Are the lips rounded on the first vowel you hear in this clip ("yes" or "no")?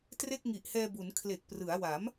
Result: no